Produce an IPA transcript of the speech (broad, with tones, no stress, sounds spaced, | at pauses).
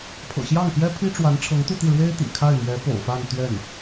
pʰ ɤ̰˨˩ ɕ j ɑ˥˩ ŋ p j ɛ˥ pʰ i˥ ʈ͡ʂ w a˧˥ n ʈ͡ʂʰ ɤ˧˥ ŋ t̪ u˥˧ t̪ i˥˩ ɻ w e˥ ɪ̯ t̪ ḭ˨˩ kʰ a˥˩ ɪ̯ m ɥ ɛ˧˥ p o̰˨˩ ʊ̯ f a˥˧ n t̪ ɥ ɛ˥˩ n